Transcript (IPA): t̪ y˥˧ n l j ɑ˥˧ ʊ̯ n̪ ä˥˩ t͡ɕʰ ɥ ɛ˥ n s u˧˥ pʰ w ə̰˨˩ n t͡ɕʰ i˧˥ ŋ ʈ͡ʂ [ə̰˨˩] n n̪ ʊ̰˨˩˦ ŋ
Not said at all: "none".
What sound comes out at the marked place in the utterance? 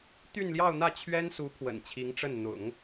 ə˥˩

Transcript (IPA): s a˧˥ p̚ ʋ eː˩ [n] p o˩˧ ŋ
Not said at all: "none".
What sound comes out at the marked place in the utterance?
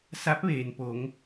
n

